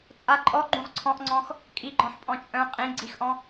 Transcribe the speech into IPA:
t͡sʼ a ǃʼ ɔ ɡ͡ǃ ũ ʁ ǀʰ ɔ̃ ʔ ŋ͡ǀ ɔ̃ x | kʼ i ɡ͡ǃ ɔ̃ ħ pʼ ɔ̃ t͡ʃʼ œ̃ qʼ ĩ ɡ͡ǀ i x ʔ ɔ̃

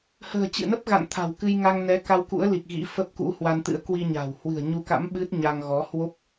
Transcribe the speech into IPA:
h ə̤ː˨˩ t͡ɕ ɨ̰˧˨ n ə˦˥ p̚ ɣ a̰˧˨ n t̪ʰ a̤˨˩ w k ɨ˧ j ŋ a˧ ŋ n ɛ˨˦ k a˧ w k ṵ˧˥ ə̯ l i˨˩ k̚ ɣ ḭ˧˥ f ə˦˥ p̚ k ṵ˧˥ h w a˧ n t̪ ɨ̰˧˥ ə̯ k w i˧ ɲ a̤˨˩ w h w ɨ̤˨˩ ə̯ ɲ u˧ k a̰˧˥ m ɓ ɨ˦˥ t̚ ɲ a˧ ŋ ɣ ɔ˨˦ h w o˦˥ p̚

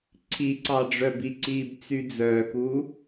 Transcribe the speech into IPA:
ǀʰ i ǀ ɑ ɖ͡ʐ œ b i ǀ iː b t͡s y d͡z œː k u

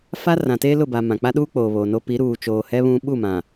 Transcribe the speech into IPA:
f a˦ r ã˨ t eː˦ l ʊ˦˨ b a˨ m ã˨ k͡p a˦ ɗ uː˦ k͡p oː˨ β o˨ n o˦ p i˨˦ ɾ uː˨ t͡ʃ oː˨ h ɛ˦ β ũ˦ ɓ u˦˨ m ã˨

